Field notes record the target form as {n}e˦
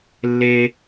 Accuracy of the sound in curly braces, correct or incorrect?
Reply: incorrect: lː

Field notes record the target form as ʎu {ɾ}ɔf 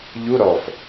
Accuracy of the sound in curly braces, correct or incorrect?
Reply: correct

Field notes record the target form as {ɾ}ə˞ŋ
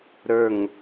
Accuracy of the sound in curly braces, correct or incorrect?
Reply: correct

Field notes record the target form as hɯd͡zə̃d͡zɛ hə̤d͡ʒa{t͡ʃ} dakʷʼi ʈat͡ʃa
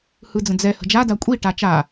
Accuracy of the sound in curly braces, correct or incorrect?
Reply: incorrect: none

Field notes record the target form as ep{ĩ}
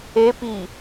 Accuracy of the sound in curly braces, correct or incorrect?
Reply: incorrect: i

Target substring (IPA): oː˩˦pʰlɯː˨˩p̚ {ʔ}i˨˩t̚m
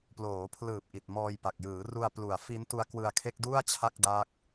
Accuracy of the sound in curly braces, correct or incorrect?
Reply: correct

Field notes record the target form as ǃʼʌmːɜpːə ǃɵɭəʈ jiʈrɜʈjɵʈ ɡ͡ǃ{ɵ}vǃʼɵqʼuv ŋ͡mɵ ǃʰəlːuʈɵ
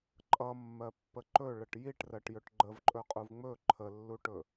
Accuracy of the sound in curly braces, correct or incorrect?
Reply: incorrect: ə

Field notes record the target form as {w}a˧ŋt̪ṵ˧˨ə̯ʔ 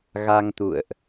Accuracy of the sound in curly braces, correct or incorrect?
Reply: incorrect: ɣ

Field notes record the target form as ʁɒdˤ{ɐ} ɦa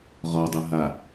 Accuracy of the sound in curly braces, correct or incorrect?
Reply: correct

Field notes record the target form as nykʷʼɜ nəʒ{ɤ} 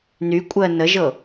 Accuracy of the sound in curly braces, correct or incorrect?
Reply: correct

